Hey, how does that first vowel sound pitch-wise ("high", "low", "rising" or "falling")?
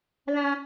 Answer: high